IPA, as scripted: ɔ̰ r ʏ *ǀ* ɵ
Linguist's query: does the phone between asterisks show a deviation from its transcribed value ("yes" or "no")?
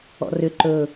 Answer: yes